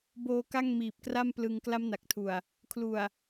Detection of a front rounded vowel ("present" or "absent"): absent